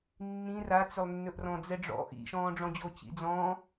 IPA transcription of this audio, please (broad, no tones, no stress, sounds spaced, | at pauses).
nː ĩ r a t͡s ʏ lˠ nː ɵ ʔ r ɔ̃ d͡z ɛ ɖ͡ʐ ɔ̰ ʔ ḭ ʃ ɔ̃ː ɖ͡ʐ ɔ̃ d͡ʑ o t͡ɕ ḭ d͡z ɔ̃